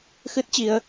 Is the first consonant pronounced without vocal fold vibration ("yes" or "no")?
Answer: yes